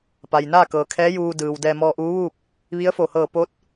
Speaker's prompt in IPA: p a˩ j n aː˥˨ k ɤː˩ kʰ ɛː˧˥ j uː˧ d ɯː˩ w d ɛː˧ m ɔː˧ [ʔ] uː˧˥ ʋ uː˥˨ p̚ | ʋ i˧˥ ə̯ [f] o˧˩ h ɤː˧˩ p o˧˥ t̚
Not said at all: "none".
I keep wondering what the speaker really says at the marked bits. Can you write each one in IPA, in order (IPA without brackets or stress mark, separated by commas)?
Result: ʔ, f